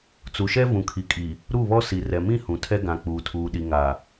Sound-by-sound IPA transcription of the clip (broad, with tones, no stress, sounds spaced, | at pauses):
t͡s u˨ ʃ ɛ˦ v ũ˨ kʰ i˨ kʼ i˨ | ɾ u˦˨ β ɔ˦ s i˨ r ɛ˨ m ĩ˦ h ũ˨ tʰ ɛ˦ ɡ ã˨ k͡p uː˨ tʰ uː˨ ɗ i˨ ŋ a˨